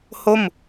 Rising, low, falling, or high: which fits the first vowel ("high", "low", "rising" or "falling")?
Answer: falling